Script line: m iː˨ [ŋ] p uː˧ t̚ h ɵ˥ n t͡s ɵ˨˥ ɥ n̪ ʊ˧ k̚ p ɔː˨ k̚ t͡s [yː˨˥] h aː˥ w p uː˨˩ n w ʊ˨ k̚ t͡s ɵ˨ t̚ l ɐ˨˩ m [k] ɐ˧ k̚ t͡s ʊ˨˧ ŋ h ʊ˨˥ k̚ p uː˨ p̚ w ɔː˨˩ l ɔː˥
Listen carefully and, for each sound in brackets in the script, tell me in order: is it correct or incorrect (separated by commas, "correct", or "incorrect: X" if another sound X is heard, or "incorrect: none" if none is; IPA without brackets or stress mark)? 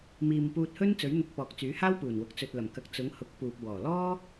incorrect: m, correct, correct